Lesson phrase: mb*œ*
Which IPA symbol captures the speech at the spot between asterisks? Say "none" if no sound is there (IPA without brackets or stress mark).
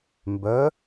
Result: œ